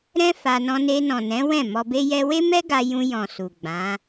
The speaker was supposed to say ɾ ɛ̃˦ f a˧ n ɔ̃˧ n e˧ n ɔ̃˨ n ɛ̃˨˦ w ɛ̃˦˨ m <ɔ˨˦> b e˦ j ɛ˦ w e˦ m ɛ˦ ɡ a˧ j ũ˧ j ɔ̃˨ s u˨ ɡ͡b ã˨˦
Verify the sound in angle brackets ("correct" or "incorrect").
incorrect